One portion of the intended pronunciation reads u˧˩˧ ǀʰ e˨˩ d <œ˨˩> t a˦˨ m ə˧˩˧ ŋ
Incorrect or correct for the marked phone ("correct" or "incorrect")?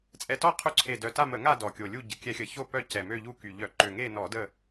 correct